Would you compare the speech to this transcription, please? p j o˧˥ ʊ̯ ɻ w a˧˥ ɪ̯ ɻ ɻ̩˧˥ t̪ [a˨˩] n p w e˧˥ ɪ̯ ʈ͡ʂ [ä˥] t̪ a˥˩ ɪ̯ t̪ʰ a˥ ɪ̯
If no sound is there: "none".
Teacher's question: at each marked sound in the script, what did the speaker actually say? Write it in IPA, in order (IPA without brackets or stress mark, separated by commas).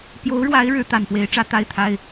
a˨˩, ä˥